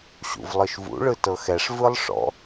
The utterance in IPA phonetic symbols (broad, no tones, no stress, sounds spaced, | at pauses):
ɕ ṵ v lˠ ɯ ʃ v ṵ ɭ ɯ t ɤ x ɛ ʂ v ɯ lˠ ʂ ɔ̰